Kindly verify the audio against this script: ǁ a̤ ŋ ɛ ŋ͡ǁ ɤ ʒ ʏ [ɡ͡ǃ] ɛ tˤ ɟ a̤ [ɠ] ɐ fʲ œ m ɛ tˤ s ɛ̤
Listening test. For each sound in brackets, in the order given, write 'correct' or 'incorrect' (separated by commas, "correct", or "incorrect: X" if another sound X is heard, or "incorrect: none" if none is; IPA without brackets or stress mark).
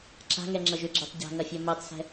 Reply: incorrect: ɡ͡ǁ, incorrect: ŋ